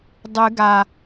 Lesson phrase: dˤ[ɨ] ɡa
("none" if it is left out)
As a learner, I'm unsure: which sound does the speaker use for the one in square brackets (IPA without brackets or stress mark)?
ɨ